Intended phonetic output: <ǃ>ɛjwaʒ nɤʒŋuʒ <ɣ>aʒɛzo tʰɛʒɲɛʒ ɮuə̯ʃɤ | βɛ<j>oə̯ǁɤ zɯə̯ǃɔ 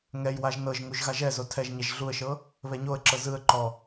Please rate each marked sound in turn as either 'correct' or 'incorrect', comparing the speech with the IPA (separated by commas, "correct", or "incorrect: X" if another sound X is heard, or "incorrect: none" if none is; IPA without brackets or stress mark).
incorrect: ŋ, correct, incorrect: ɲ